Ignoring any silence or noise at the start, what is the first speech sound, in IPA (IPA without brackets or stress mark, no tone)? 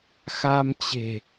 x